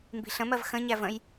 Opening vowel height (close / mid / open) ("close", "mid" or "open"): close